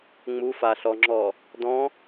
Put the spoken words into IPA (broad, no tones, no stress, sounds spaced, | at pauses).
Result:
ŋ͡m u f a ɬ ɔ ŋ͡ǁ ɔ | d ɔ̃